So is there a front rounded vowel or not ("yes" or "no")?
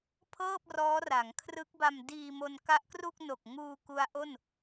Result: no